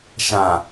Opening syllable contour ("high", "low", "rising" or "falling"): low